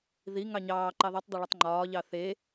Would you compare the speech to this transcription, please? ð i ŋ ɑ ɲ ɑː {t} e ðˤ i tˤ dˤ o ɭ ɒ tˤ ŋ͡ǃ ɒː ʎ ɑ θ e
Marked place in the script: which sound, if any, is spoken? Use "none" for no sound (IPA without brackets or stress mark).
ǃ